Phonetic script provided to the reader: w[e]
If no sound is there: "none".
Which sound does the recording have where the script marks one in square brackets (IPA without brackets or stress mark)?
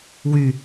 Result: y